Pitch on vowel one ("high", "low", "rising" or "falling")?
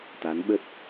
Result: rising